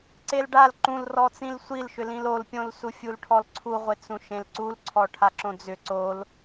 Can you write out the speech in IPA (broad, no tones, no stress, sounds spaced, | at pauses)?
ǀ e l ɖ a l ǃ ũ l r ɔ t͡s ĩ l sʷ i l ʃ ʏ l ĩ l o l pʲ õ l s u fʲ u l ʈʰ ɔ l ǀʰ u ʁʷ e t͡s ũ ʃ ẽ l ǀ u l ǀʰ ɔ ʈʰ a ǁ õ d͡z ʏ ǀ o l